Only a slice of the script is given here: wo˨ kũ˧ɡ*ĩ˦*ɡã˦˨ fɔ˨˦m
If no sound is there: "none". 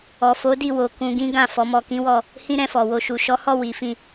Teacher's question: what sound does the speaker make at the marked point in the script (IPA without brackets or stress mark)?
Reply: ĩ˦